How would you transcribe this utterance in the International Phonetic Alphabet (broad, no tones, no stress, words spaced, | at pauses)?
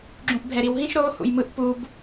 ɡ͡ǁũʔbʱɛɾiwɦĩʃ ɾo hṵjmɯʔ pub